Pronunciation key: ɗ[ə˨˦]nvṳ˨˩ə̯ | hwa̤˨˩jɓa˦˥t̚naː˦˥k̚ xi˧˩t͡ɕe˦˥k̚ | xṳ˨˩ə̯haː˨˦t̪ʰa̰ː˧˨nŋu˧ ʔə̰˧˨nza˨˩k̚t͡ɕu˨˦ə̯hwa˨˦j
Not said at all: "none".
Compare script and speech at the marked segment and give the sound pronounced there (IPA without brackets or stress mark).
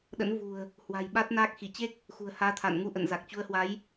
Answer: ə̰˧˥